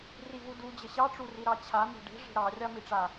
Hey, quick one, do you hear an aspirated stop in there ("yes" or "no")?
yes